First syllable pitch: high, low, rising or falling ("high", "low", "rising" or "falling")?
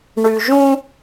low